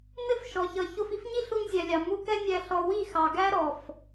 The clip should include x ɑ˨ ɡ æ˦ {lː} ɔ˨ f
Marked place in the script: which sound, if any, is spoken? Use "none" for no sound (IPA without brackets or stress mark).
ɾ